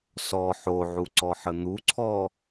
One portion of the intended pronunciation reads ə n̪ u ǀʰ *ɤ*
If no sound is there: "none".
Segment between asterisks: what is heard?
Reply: ɔ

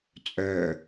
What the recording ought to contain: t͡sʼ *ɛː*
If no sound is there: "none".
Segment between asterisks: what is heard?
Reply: œː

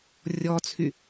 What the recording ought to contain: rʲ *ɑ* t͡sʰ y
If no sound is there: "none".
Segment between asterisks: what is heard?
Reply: ɔ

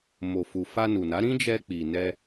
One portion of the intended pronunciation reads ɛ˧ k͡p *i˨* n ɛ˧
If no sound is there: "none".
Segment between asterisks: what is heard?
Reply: i˨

